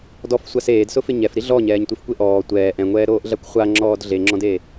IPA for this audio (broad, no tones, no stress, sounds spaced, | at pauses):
d ɔ f sʷ a s eː d s ʊ f ɪ ɲ ɛ f ɾ i ɮ ɔ ɲ ɛː ɲ tʷ i f kʷ e ʔ ɔː tʷ ɛː ʔ ɛ̃ ŋʷ ɛː ɾ oː ʔ ɮ a kʷ χʷ a ŋ͡ǁ ɔː d ɮ e ŋ͡ǁ ɔ̃ d e